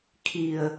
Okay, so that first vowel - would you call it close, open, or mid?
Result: close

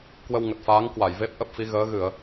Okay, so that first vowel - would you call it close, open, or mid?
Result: mid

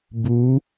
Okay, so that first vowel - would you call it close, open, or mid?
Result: close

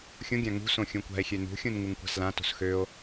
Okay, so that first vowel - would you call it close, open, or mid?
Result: close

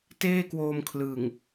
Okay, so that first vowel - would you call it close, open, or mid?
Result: mid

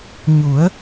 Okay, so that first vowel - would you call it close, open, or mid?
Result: close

